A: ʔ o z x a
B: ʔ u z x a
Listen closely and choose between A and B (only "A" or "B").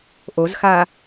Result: A